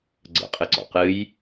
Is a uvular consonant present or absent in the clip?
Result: present